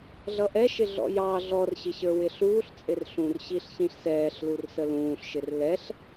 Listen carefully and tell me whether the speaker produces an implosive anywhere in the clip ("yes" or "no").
no